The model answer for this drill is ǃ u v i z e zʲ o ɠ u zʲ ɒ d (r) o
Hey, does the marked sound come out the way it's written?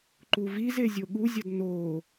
no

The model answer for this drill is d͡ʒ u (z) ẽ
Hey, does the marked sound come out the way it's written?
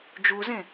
yes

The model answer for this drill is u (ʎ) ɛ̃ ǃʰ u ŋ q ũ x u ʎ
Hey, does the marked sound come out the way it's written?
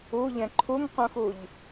yes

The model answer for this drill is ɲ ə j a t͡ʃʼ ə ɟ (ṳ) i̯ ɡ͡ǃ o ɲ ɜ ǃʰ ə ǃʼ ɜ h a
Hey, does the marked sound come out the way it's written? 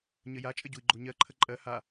no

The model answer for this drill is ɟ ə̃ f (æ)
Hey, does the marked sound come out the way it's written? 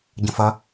no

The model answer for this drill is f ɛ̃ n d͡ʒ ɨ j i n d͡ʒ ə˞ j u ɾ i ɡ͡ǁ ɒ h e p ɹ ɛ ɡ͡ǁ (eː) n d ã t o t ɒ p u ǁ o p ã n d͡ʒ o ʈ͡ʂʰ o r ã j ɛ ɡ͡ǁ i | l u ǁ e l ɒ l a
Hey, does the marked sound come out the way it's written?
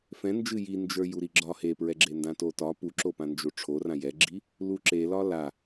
no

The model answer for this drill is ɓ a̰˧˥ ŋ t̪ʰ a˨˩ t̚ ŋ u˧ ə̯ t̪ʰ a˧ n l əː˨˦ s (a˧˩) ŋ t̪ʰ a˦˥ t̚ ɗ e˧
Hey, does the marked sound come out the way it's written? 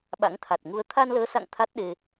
no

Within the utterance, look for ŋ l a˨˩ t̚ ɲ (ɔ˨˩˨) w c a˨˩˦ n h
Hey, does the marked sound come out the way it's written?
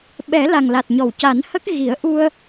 yes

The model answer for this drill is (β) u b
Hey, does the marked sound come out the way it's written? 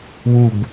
no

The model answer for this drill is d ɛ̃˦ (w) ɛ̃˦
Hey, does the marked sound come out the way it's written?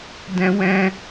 yes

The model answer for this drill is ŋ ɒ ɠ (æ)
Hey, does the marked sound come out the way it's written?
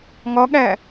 yes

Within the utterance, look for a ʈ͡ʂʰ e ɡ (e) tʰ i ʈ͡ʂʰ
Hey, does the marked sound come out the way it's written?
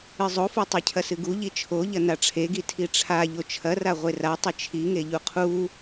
no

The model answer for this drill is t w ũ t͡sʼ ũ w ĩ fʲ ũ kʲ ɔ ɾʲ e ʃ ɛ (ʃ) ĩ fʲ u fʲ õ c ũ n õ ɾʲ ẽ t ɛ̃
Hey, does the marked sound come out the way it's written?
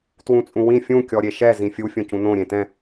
no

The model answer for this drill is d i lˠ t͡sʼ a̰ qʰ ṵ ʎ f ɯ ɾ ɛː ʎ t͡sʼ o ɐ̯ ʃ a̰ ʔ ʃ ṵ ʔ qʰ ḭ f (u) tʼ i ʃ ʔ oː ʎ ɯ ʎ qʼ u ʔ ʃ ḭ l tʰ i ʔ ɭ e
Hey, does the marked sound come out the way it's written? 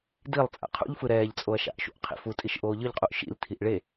yes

